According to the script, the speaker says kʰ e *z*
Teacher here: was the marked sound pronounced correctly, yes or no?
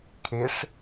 no